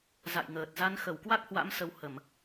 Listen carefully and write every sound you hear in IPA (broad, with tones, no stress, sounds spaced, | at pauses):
z a̰˧˨ j ŋ əː˨˩ t̚ z a˨˦ n x ə˧˩ w k w a˦˥ k̚ h w a̰˧˥ m s ə˧ w h ə˧˩˨ m